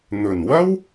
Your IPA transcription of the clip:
n̪ɵ˨˩nwɐ˥w

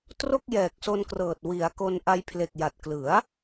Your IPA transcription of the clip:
tro˥˩k̚jɛː˨˩k̚so˧nkrɤː˨˩t̚ wi˩˦a̯ ko˧n ʔa˧jpʰle˨˩k̚ja˨˩t̚ klɯ˩˦a̯

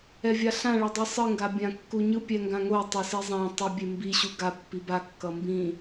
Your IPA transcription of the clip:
ɛvʲaɬã ɭɛdˤesˤɯ ŋɡabʲãkːuɲɯ pʲɛŋɡãŋo tˤʌsizˤã tˤʌbʲembi ɕuɡa pːiba kːʌmbĩ

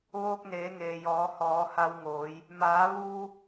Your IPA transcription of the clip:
ʋoː˧k̚neː˩˧ŋeː˩jɔː˩˧ hɔː˩˧ha˧wŋoː˩˧j | maː˩˧ʋuː˧

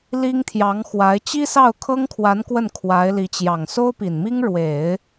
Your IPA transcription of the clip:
li˥ŋt̪ʰjɑ˧˥ŋxwa˧˥ɪ̯ t͡ɕi˥sɑ˥˩ʊ̯kʰɤ˥ŋkʰwa˧˥n kwə˥˩nkʰwa˧˥ɪ̯li˧˥t͡ɕjɑ˨˩ŋ so˥ʊ̯pi˨˩nmi˥ŋ ɻwe˨˩˦ɪ̯

